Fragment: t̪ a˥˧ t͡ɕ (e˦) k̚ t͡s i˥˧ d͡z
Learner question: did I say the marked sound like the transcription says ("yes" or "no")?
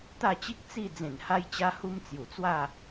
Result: no